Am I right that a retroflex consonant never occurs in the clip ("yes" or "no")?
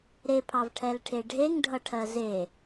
no